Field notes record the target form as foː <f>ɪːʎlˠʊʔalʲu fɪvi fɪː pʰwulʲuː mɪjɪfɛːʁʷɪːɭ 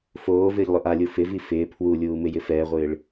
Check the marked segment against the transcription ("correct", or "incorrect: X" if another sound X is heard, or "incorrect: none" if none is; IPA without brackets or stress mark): incorrect: v